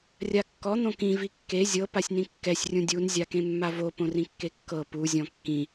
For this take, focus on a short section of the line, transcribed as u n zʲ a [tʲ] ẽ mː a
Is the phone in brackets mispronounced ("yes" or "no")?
yes